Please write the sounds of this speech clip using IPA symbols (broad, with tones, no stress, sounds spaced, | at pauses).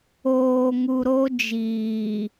oː˨ ŋ u˨ ɾ o˦ d͡ʒ iː˨